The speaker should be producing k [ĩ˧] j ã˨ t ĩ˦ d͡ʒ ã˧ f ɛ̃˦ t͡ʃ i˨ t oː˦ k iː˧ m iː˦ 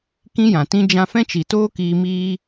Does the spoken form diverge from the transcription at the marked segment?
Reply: yes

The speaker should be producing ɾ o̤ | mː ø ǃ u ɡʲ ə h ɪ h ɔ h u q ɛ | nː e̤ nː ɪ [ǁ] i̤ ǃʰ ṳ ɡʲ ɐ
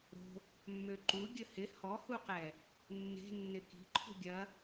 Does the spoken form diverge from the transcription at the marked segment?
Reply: yes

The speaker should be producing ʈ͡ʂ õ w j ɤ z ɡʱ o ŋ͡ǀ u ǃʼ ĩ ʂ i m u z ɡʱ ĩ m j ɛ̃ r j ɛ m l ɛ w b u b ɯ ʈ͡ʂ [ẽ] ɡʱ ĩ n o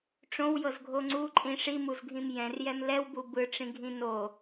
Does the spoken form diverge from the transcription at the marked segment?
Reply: yes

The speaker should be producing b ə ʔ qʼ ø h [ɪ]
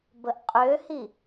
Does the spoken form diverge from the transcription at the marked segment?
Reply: yes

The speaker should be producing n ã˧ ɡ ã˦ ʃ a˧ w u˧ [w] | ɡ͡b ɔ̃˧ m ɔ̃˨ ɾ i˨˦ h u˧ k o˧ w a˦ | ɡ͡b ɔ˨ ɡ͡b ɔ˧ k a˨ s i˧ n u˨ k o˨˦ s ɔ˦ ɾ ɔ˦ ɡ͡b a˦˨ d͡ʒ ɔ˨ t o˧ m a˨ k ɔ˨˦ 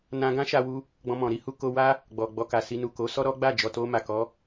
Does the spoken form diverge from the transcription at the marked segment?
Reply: yes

